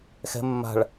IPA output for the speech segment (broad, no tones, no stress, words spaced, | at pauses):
xɛ̤ mːa̤ɭ